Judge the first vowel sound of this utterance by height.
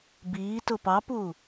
high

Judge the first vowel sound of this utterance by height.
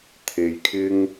mid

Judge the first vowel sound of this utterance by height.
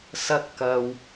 low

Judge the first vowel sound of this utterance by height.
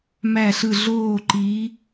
low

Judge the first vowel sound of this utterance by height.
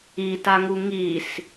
high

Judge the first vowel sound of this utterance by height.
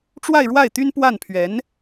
low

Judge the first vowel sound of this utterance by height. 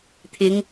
high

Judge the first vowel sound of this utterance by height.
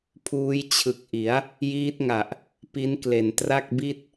high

